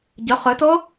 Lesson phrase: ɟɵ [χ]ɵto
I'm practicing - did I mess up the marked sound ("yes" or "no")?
no